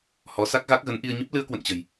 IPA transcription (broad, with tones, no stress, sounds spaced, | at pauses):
h ɔ˨˦ s a˦˥ k̚ ɣ a˦˥ k̚ ɣ ə˨˦ n ʔ i˧ ə̯ ɲ ə˦˥ p̚ l ɨ˧ ə̯ k w ə̰˧˨ n t͡ɕ ə̤˨˩ j